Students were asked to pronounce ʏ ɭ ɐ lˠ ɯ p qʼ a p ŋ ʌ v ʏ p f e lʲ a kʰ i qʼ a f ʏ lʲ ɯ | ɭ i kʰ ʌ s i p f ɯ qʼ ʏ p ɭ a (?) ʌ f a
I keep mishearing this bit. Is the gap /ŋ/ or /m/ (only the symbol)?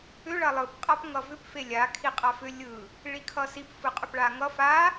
ŋ